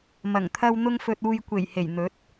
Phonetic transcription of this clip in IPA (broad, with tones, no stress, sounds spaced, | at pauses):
m ɐ˨˩ ŋ t̪ʰ ɐ˧ w n̪ ʊ˧ ŋ f ɵ˨ t̚ uː˨ j kʷ e˨˩ j h e˨˩ j n̪ ɵ˨˥ t̚